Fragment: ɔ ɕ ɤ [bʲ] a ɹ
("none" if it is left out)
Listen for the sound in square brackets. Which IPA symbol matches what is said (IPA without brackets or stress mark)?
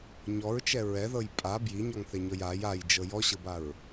b